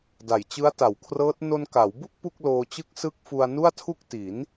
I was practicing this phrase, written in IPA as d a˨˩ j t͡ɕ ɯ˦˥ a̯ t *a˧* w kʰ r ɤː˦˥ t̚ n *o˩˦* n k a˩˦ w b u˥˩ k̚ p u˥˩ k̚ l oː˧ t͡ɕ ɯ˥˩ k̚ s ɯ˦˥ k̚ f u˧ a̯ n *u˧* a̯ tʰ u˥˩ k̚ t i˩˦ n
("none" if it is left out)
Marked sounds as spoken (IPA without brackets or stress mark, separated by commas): a˩˦, o˧, u˥˩